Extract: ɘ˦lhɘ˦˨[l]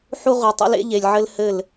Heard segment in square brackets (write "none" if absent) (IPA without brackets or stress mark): l